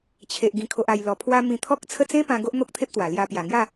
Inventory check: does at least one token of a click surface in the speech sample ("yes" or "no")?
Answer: no